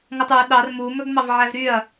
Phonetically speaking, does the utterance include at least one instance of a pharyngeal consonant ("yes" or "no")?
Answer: yes